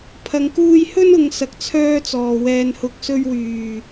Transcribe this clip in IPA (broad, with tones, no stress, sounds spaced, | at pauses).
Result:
pʰ ɐ˨ ŋ k uː˧ j h ɵ˥ n ʊ˨˧ ŋ s ɐ˨ k̚ t͡sʰ œː˧ t͡s ɔː˨˩ w ɛː˨ n h ʊ˨˥ k̚ s ɵ˧ ɥ w yː˨˩